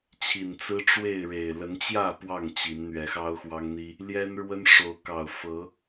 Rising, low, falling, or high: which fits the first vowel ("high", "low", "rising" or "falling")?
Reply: low